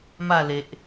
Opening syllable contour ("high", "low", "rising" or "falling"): falling